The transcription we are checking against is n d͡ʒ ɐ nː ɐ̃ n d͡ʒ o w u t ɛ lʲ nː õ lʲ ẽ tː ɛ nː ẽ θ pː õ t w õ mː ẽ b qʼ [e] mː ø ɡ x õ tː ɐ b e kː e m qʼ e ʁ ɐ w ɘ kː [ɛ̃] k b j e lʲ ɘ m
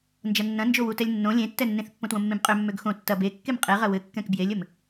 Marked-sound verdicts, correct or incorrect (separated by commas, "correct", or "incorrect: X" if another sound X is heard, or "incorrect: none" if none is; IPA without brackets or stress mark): incorrect: ø, correct